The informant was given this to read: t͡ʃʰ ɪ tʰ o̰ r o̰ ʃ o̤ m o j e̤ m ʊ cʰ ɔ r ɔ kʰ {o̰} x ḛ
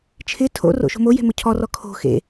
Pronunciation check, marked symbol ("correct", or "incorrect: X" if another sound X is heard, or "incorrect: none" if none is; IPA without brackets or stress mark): incorrect: o̤